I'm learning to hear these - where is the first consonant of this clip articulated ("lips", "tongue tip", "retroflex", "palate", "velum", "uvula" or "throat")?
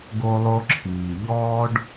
velum